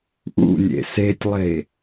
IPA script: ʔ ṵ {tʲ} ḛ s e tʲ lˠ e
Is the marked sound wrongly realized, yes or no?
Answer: yes